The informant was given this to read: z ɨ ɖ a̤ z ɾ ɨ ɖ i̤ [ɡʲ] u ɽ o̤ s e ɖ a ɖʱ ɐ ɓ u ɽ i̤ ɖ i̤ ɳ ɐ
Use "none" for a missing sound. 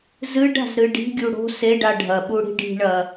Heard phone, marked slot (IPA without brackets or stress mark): ɡʲ